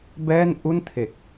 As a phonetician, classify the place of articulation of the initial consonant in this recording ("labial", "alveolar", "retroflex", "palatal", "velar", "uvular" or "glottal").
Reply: labial